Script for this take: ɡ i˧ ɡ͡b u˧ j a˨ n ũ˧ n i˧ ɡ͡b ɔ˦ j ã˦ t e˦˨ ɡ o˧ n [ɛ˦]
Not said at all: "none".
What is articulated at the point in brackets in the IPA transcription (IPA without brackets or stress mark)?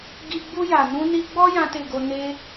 e˦